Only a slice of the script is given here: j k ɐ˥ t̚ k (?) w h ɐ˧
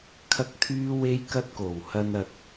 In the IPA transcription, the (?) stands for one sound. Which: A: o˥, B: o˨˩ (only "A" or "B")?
B